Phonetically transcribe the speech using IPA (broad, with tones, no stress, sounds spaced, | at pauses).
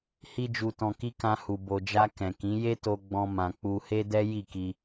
h i˦ d͡ʒ u˧ t ɔ̃˧ k i˦ k ã˧ h u˨ b o˨ d͡ʒ a˧ k ɛ̃˨ k ĩ˨˦ j e˦ t o˧ ɡ͡b ɔ̃˦ m ã˧ k͡p u˦ h e˦ d ɛ˦ j i˦˨ k i˧